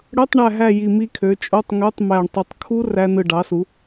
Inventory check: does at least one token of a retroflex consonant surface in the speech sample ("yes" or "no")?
yes